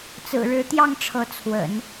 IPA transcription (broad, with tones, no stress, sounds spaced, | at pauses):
t͡s ɹ̩˨˩ ɻ ɻ̩˧˥ t̪ j ɑ˥˩ ŋ ʈ͡ʂʰ ɤ˧˥ t͡sʰ w ə̰˨˩˦ n